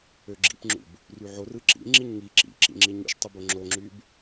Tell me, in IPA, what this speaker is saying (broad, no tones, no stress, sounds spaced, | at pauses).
ø ɡ͡ǁ ḭ p ŋ͡ǁ ṵ b | r y ʕ o r ɯ ǁ ḭ ŋ͡ǁ i ɲ ŋ i ǁ ḭ ǁ ḭ ŋ͡ǁ i ɲ ṵ ʃ tˤ ɯ b o ŋ͡ǁ o ŋ͡ǁ y b